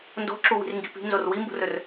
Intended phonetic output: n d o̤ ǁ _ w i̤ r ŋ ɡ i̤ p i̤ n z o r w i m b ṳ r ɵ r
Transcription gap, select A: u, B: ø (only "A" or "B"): A